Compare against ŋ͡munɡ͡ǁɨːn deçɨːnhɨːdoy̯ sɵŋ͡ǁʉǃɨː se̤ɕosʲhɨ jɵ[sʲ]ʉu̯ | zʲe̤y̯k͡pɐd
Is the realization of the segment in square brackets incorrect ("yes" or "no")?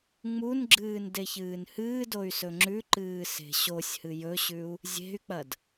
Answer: yes